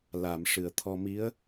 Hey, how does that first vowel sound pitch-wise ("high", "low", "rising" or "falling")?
low